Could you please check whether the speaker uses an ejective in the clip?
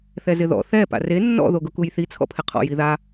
no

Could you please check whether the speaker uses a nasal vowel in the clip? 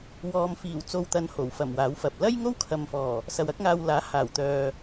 no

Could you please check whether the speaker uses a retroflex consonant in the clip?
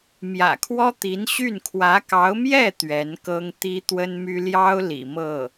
no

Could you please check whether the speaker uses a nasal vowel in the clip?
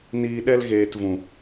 yes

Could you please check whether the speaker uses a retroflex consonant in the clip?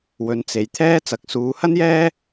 no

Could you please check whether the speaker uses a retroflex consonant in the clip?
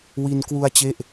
no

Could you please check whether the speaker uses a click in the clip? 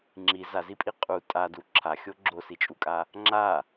yes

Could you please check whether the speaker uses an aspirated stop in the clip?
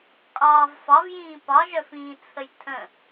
yes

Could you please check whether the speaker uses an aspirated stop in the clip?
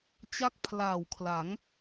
yes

